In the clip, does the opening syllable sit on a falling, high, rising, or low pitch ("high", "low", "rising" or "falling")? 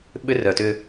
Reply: high